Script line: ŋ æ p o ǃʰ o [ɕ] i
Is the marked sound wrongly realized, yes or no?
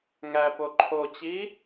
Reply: yes